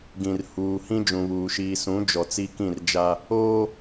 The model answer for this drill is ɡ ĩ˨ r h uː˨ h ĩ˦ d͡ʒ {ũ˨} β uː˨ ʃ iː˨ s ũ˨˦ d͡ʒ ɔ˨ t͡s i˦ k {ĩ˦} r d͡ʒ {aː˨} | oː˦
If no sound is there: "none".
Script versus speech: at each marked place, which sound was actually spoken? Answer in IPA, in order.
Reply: ũ˨, ĩ˦˨, aː˦

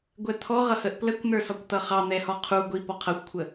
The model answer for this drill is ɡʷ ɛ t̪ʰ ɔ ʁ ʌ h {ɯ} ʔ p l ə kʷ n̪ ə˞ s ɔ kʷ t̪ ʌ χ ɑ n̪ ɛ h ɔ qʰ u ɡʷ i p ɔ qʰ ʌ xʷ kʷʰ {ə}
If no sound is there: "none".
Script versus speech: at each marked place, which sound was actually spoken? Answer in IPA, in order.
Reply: ə, ə

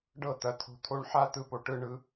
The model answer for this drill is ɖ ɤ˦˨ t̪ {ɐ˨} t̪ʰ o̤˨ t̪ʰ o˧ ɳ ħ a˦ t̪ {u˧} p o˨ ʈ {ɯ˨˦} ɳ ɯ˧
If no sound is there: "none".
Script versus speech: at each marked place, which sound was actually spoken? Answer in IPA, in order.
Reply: ɐ˨, ɯ˧, ɯ˧

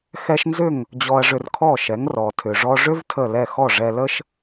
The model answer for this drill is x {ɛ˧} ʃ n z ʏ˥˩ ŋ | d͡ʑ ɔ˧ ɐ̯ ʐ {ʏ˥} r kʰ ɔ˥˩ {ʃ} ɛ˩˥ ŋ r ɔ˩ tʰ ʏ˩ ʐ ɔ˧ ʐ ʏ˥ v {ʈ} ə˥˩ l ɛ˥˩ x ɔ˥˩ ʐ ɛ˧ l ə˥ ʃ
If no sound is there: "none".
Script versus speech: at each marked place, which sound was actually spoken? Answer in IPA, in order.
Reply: ɛ˥, ʏ˧, ʃ, tʰ

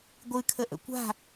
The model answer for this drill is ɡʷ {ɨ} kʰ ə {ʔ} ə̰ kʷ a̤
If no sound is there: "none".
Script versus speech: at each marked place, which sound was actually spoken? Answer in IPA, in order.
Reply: ɨ, ʔ

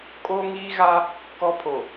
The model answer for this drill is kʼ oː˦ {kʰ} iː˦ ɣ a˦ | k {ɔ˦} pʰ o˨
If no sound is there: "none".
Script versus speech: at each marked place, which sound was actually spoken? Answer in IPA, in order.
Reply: ŋ, ɔ˦

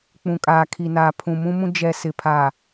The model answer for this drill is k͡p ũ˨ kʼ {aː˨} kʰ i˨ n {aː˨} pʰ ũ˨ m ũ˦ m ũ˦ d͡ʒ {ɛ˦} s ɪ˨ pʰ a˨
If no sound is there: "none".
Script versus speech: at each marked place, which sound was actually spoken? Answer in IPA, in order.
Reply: aː˨, aː˨, ɛ˨

